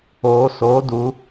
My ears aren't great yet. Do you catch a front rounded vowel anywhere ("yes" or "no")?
no